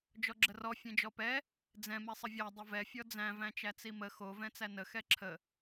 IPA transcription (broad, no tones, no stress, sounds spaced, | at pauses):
d͡ʒ ɔ ɡ͡ǁ ə r ɔ fʲ ɛ̃ d͡ʒ ɔ p ɛ | d͡z ɛ̃ m ɛ sˤ ə vʲ æ dˤ ə v ɛ fʲ ɔ d͡z æ̃ v æ̃ t͡ʃ æ t͡s i m ə x o v ɛ̃ t͡s æ n ə x ɛ ǁʰ ə